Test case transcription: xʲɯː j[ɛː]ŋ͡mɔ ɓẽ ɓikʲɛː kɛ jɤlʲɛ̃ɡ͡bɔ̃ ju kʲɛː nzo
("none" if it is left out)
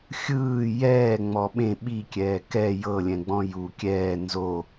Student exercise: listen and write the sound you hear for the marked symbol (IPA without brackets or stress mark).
ɛː